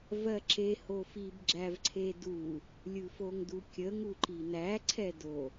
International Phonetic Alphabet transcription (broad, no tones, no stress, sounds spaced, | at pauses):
v ɜ ǁ e h o f i b ɡ͡ǁ æ v ǀʰ e d u | lʲ ɯ f o ŋ d u kʲ ə ŋ u ǃ i n æ ǀʰ ɛ d o